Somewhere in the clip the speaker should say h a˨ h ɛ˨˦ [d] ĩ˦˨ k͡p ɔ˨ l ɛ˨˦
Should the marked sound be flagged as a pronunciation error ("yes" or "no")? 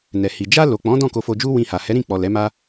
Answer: yes